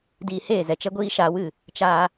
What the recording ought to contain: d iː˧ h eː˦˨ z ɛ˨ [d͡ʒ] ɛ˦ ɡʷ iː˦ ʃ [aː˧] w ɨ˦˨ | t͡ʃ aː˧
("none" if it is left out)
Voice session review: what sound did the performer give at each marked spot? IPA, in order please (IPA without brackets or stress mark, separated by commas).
t͡ʃ, aː˧